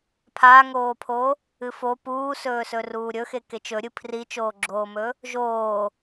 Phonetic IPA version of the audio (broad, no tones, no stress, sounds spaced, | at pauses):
pʰ a ŋ oː pʰ o | ɨ f o p uː s ɵː s ɵ r uː ɾʲ ɵ x e k e t͡ʃ ɵ ɾʲ ɨ pʰ r i t͡ʃ oː ɡ͡ǁ oː m ɵ | ʒ oː